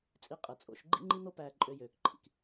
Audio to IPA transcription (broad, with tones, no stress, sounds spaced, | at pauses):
t͡sʼ i˧ qʼ ɯ˩ t͡sʼ o̰˧ ʃ ɡ͡ǃ ḭ˥ ŋ͡ǃ i˥ n̪ o˥ p æː˧ ǃʼ ø˧ j øː˩ k ǃʰ ḭ˩ k